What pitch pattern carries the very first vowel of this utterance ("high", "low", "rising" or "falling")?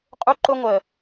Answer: high